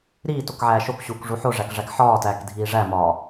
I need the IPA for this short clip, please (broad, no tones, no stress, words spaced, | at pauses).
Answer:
ɾiːtokʕæː ʃokɕuːkʐu ħoʐækʐæk ħɒːtæːkdʱiː ʐæmɒː